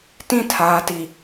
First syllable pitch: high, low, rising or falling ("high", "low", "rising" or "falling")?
falling